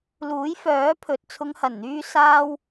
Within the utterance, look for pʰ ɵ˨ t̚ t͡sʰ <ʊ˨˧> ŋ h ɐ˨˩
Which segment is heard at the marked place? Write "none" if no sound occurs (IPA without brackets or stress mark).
ʊ˨˧